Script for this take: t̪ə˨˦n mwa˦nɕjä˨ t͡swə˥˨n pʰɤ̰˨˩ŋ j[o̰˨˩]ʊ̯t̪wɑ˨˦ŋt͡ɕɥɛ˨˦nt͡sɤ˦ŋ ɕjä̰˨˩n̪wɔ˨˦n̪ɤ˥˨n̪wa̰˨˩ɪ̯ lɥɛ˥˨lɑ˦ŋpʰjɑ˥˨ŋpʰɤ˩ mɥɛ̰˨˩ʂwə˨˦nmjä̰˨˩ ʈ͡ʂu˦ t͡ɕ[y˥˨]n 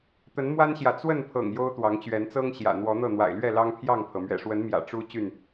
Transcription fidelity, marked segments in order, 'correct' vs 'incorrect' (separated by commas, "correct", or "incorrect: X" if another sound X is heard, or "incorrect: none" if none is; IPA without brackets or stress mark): incorrect: o˦, correct